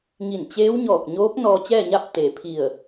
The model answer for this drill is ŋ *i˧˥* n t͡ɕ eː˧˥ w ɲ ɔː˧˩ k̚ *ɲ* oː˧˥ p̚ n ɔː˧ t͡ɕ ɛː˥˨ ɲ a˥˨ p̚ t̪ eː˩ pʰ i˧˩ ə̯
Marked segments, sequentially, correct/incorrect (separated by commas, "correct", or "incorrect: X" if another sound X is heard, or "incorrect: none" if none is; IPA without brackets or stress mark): incorrect: i˧˩, correct